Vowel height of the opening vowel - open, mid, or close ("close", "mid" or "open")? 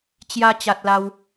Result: open